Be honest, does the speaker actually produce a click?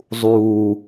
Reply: no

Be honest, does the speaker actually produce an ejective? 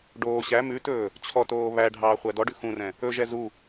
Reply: no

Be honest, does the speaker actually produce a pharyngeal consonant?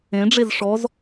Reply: no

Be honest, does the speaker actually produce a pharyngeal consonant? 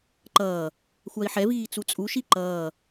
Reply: yes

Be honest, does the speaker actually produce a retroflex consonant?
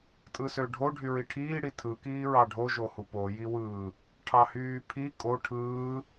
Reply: yes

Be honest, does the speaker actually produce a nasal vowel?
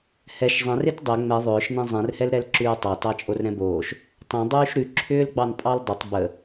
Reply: yes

